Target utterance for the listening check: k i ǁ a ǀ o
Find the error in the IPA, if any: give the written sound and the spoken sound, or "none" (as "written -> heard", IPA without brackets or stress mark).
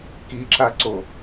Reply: none